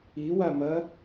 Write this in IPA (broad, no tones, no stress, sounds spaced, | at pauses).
i w a m ɐ